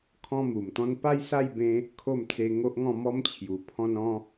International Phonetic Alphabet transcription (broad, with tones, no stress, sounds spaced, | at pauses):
kʰ ɔ̃˦ m u˨˩ m t̪ ɔ̃˦ n p a˦ j s a˥˧ j b ẽ˧ | kʰ o˥˧ m t͡s e˧ ŋ o˦ ʔ ŋ ɔ̃˥˧ m ɔ˦ m t͡ɕʰ j u˨˩ pʰ ɔ̃˧ n ɔ̃˧